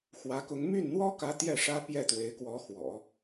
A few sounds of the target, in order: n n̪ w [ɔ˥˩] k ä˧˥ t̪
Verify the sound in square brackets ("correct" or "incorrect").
incorrect